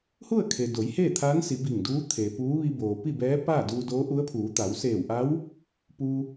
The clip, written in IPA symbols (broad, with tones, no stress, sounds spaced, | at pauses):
h u˥˨ ə̯ kʰ e˩ d o˩˧ j h eː˥˨ t̪ʰ aː˧˥ n s i˩˧ b i˧˩ ŋ d uː˧˥ t̪ʰ e˩ p uː˧˥ ʋ i˧ b oː˩ p i˥˨ b ɛː˧˥ p aː˥˨ d uː˧ d oː˧˥ ʔ u˧˥ ə̯ pʰ uː˩˧ t̪ a˩˧ w s eː˧˩ w ʔ a˧˥ w | p uː˧